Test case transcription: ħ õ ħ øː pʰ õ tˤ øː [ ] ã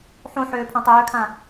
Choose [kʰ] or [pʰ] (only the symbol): kʰ